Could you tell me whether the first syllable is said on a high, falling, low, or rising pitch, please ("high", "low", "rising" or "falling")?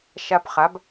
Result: high